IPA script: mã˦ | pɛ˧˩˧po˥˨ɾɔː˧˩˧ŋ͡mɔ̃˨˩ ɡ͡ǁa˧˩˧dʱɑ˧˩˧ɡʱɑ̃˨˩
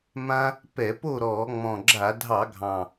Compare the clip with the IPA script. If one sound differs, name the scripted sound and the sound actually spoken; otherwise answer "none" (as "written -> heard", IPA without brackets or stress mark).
none